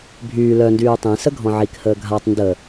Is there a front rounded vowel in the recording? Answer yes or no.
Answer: yes